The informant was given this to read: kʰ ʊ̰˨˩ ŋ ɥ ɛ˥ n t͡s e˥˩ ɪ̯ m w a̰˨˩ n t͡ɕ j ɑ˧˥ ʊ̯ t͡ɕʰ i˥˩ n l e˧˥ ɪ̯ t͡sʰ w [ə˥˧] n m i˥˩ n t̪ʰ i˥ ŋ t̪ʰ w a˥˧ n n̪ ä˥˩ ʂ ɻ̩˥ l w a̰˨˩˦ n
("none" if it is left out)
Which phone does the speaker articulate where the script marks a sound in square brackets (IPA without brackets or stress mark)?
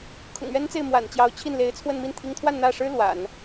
ə˥˧